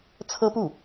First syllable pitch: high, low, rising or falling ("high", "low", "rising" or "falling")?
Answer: high